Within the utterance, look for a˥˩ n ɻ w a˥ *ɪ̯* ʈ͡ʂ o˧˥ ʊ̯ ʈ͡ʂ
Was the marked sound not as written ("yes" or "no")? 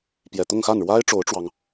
no